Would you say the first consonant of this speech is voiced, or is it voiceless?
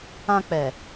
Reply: voiceless